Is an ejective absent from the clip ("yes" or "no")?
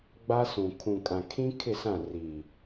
no